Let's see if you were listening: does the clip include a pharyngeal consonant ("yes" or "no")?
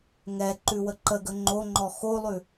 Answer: no